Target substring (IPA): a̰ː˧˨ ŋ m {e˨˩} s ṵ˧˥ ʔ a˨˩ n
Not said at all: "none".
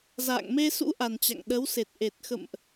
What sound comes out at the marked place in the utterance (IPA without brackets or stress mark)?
e˧